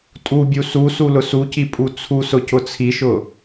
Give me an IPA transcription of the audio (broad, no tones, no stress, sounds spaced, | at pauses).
tʼ u bʲ u s u s u l ʊ s u c i pʼ u t͡sʰ u s ʊ c ʊ t͡sʰ i ʃ ʊ